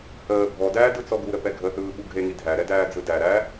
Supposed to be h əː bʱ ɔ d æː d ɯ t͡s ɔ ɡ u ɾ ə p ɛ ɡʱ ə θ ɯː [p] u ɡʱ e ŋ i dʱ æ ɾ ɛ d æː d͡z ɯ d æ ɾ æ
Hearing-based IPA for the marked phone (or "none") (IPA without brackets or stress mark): ɓ